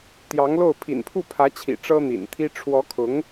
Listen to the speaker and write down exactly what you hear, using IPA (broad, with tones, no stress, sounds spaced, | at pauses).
t̪ j ɑ˧˥ ŋ l o˥˩ ʊ̯ pʰ ḭ˨˩ n pʰ u˥˩ pʰ ä˧˥ t͡ɕʰ ḭ˨˩ ʈ͡ʂ ɤ˥ n̪ ḭ˨˩ n t̪ʰ i˥ ʈ͡ʂʰ w ɔ˧˥ kʰ ʊ˧˥ ŋ